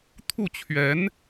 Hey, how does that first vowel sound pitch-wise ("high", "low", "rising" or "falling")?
falling